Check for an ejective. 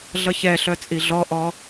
present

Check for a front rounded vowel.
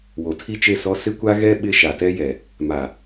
absent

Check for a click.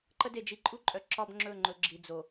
present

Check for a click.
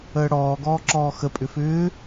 present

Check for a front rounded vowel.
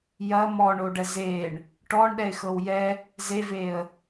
absent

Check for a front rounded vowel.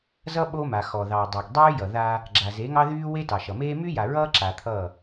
present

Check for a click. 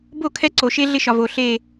present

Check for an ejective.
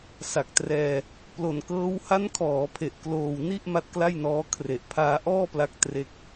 absent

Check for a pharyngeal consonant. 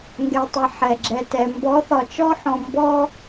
present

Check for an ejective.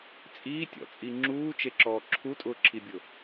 present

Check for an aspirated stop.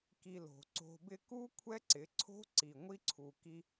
present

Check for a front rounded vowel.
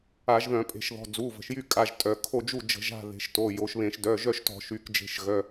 present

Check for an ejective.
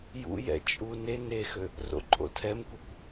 present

